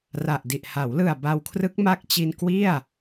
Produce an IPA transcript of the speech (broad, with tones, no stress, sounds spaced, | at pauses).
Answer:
r a˨˩ ʔ d i˨˩ ʔ h a˩˦ w l ɯ˨˩ a̯ b a˧ w kʰ r ɯ˦˥ k̚ m a˦˥ k̚ t͡ɕ i˧ n k w i˥˩ a̯